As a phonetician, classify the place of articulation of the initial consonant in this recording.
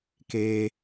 velar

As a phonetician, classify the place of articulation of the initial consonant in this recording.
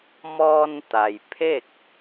labial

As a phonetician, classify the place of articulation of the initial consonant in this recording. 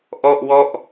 glottal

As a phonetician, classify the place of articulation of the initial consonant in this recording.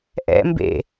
glottal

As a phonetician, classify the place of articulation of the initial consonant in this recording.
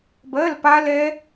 labial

